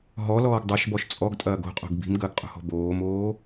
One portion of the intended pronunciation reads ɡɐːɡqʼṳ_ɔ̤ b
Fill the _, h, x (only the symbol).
h